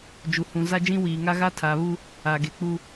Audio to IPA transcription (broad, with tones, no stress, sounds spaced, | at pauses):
d͡ʒ u˨ h ũ˨ z a˦ d͡ʒ ĩ˦ w iː˨ ŋ a˦ ɣ a˦ tʰ aː˨ β u˦ | a˨ ɡ e˨ k͡p u˦